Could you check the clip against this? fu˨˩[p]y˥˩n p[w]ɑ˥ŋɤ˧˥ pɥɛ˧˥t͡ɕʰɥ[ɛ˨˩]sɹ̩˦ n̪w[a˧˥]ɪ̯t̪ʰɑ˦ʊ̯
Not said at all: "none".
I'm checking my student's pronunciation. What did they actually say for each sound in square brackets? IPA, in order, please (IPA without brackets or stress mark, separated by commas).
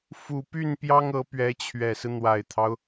p, j, ɛ˨˩, a˨˩